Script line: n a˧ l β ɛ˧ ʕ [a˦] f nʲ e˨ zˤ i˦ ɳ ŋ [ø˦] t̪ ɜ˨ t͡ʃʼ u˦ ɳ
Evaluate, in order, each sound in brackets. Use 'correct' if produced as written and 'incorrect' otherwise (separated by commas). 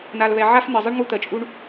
correct, incorrect